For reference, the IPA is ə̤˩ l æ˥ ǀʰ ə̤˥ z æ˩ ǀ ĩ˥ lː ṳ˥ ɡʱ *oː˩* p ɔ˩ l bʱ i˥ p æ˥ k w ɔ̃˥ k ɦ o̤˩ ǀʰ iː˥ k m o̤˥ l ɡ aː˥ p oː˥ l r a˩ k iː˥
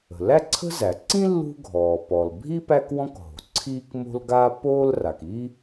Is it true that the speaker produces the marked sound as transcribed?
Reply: no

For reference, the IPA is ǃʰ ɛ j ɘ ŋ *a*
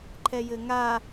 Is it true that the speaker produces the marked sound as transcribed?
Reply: yes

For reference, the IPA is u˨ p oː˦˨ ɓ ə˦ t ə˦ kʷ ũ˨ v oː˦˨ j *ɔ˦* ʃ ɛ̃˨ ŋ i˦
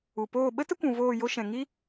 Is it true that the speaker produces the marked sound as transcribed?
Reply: no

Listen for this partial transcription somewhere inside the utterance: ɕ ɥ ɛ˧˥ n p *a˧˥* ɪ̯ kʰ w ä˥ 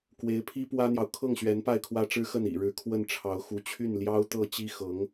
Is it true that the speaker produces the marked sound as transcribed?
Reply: no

